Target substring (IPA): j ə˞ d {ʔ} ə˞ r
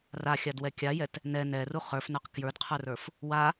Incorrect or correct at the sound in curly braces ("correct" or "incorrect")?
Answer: incorrect